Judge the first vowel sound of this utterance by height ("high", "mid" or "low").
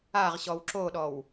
low